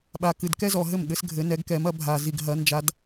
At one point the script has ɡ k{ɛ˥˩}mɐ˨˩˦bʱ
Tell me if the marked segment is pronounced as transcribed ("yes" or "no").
no